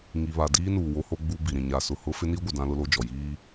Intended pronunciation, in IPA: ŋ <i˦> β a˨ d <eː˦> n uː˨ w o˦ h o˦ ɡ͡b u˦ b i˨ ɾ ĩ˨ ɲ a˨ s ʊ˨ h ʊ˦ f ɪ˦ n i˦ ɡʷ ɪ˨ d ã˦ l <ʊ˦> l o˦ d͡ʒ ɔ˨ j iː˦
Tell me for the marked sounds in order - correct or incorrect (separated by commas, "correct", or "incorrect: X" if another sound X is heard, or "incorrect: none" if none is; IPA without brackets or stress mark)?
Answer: incorrect: i˨, incorrect: iː˦, correct